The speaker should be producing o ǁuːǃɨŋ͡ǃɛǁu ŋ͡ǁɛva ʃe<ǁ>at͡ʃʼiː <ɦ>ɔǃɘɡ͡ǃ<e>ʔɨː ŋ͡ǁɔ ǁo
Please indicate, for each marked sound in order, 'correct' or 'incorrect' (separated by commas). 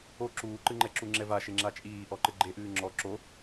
incorrect, incorrect, correct